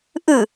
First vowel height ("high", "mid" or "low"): high